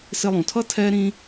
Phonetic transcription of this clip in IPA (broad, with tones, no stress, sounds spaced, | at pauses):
s ɪ˧ lˠ ũ˨ tʰ ʌ˦ tʰ ɛ˦ ɾ ĩ˦